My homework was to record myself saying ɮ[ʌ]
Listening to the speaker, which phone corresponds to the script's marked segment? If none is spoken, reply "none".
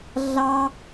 ɑ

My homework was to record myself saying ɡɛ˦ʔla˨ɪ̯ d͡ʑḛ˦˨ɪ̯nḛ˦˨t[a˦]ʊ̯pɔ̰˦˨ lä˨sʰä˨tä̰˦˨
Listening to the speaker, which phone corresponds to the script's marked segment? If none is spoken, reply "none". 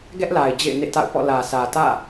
a̰˦˨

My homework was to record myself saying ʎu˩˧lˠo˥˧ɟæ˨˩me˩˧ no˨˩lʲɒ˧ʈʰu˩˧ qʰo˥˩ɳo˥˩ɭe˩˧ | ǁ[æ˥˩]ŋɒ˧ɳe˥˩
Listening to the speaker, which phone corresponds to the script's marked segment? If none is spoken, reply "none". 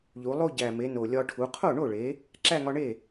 æ˥˧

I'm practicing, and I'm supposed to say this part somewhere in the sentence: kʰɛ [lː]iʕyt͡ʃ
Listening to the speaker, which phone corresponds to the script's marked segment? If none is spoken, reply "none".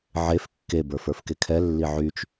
lː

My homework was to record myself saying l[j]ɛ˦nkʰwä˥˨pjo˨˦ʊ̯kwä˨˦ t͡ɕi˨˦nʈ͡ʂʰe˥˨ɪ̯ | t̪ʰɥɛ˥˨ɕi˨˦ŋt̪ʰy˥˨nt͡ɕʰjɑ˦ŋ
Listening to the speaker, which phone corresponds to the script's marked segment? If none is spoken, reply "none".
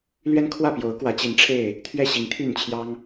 ɥ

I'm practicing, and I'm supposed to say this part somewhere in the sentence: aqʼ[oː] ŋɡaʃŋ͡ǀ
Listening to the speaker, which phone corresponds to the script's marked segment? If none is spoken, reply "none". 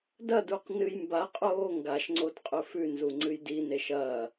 oː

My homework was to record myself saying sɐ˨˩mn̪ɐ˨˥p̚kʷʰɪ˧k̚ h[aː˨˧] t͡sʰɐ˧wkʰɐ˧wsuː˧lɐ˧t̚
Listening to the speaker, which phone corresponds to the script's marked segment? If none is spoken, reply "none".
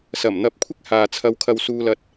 aː˨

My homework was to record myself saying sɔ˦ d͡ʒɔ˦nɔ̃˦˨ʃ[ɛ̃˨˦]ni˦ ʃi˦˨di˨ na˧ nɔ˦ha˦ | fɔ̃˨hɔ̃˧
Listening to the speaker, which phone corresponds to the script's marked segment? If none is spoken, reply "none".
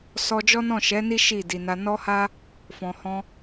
ɛ˨˦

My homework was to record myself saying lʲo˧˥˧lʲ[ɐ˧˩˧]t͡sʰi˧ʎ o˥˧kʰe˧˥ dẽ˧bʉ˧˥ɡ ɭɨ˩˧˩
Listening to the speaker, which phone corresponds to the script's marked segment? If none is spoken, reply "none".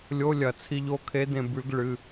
ɐ˧˩˧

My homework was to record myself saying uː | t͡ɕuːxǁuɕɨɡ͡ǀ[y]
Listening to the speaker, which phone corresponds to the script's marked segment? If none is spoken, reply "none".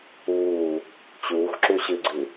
ɨ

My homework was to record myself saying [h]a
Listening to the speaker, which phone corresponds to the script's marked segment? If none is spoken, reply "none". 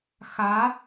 x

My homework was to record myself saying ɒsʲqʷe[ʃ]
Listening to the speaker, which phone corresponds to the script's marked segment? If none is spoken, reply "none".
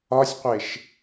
ʃ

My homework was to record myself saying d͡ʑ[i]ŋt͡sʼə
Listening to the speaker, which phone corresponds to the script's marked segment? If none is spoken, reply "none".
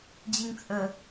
i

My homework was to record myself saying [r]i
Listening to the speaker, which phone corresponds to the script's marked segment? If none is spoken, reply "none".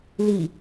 l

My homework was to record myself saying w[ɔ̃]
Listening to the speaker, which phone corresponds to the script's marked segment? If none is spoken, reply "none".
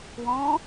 ɔ̃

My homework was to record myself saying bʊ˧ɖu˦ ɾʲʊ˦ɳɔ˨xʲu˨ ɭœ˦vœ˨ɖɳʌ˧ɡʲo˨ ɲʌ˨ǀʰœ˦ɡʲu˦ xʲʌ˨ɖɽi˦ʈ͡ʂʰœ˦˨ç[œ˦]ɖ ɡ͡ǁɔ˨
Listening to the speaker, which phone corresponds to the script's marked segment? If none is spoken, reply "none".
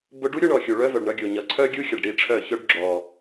œ˦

